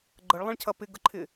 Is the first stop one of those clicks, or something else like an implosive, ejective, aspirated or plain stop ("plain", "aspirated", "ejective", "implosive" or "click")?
click